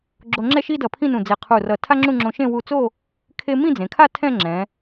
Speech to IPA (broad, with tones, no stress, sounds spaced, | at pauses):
ɡ͡ǁ o˧ ŋ͡ǁ ɛ˥˧ ʃ i˥ d ʌ˧˩ pʰ ĩ˥˧ n ũ˧˩ d͡z e˧˩ qʰ u˧˩ r ʌ˧˩ tʰ a˥ ŋ͡ǁ ũ˥˧ ŋ͡ǁ õ˧ ʃ ẽ˥˧ w u˧ t͡s o˥˧ | kʰ e˥ m ĩ˥˧ d͡z ẽ˩˧ kʰ a˥˧ tʰ ɛ̃˥˧ ŋ͡ǁ ɛ̃˩˧